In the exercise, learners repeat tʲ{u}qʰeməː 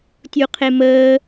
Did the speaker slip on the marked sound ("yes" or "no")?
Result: no